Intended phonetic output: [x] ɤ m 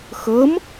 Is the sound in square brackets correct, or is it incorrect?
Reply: correct